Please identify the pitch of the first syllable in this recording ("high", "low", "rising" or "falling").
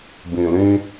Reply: low